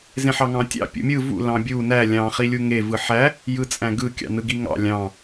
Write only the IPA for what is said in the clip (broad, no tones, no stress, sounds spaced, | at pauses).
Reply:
z ẽ ħ ɑ ŋ ɑ̃ tʲ ɑ̰ pʲ ṵ mʲ ɯ v ṵ l ɑ̃ bʲ u n æ lʲ ɑ̃ χ i lʲ u ŋ e v ɯ ħ æ | j ɯ t͡sʼ æ̃ ɡ ɯ kʲ ɑ̰ n ɯ ɡ i ŋ ɑ̰ lʲ ɑ̃